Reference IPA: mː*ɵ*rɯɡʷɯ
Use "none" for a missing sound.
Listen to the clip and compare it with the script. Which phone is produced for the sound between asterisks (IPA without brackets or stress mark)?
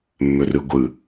ɵ